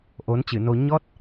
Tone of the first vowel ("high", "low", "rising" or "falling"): rising